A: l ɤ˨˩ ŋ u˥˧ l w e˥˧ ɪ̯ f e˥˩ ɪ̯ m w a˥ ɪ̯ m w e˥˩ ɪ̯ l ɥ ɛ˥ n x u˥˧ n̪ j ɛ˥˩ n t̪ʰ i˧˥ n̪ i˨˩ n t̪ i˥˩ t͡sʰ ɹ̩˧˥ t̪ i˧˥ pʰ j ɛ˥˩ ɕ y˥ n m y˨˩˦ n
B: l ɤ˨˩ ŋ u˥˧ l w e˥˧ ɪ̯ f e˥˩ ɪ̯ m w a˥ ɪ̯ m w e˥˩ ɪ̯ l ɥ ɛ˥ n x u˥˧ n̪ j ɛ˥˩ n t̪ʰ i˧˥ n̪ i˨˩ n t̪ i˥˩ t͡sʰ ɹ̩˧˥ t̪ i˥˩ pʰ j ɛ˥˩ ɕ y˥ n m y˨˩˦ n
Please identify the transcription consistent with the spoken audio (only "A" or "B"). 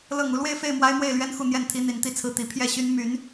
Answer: A